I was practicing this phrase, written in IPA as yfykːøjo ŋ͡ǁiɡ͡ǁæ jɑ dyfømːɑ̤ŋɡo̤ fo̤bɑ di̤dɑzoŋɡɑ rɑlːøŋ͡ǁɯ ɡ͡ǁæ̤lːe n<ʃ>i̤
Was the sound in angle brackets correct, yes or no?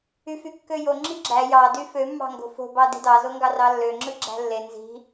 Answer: no